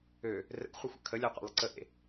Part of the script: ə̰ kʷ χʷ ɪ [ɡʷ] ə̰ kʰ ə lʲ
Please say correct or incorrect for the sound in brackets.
incorrect